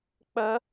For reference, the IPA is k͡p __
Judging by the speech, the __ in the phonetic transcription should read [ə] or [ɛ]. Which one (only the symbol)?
ə